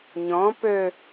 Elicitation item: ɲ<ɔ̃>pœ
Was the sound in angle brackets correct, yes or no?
yes